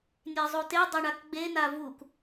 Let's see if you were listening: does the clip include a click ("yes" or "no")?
no